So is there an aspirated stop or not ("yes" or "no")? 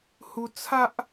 yes